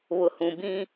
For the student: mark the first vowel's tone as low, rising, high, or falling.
low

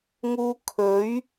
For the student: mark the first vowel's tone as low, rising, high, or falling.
high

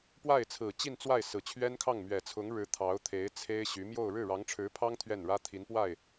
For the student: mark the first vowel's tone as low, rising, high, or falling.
falling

